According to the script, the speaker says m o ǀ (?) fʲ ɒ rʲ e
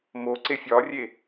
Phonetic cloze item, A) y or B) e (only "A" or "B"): B